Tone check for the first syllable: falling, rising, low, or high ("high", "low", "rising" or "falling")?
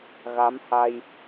rising